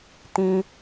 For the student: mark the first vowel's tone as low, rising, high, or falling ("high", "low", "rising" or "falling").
high